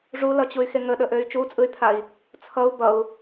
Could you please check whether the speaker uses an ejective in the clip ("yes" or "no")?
yes